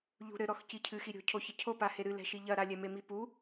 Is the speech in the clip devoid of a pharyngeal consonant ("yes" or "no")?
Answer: yes